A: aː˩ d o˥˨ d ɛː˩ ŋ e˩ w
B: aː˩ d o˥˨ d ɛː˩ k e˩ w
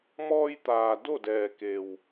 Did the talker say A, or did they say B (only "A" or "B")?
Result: B